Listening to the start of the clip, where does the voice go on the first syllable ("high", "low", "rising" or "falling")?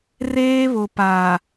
high